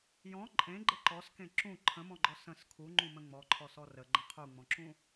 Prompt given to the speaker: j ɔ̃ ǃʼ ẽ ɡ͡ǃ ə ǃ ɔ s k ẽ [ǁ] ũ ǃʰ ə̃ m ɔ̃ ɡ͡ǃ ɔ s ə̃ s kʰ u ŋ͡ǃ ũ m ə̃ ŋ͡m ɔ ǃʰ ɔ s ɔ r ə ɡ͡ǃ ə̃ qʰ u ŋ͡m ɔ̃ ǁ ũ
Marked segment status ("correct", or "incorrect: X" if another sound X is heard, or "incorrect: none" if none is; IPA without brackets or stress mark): correct